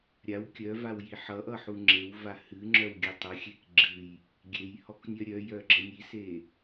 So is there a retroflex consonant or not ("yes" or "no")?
no